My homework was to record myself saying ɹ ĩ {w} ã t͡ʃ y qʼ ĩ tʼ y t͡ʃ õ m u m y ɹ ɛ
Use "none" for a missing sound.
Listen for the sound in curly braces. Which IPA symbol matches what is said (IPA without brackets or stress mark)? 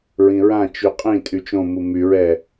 ɹ